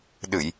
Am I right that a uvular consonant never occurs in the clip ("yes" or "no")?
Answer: yes